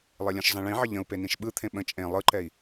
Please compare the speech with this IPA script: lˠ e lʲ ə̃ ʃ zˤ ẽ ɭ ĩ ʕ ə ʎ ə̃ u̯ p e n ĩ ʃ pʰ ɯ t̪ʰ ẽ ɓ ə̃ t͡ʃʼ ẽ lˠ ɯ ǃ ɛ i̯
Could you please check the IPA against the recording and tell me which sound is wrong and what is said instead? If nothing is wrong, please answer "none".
pʰ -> ɓ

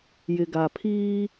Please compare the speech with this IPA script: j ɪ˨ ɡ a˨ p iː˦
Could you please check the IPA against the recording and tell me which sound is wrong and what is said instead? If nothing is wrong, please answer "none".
p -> pʰ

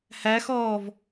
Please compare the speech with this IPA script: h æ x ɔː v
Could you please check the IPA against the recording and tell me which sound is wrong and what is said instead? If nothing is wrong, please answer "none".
none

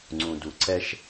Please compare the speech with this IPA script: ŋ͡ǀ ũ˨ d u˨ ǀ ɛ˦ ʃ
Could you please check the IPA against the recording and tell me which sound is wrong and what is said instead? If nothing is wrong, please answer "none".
none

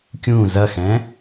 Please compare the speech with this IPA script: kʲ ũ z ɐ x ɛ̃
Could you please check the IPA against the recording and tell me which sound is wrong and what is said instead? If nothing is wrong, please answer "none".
none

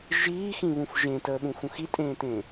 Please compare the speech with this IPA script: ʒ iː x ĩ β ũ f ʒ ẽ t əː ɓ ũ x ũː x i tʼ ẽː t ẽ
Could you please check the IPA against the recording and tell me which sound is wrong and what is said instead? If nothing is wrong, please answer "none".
ũː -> ũ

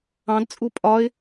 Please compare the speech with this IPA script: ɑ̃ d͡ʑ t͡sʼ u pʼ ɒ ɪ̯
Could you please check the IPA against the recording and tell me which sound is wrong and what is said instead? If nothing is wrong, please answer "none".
d͡ʑ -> d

